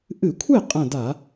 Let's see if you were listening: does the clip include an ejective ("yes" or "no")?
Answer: yes